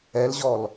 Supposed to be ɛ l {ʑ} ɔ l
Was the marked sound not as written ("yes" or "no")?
no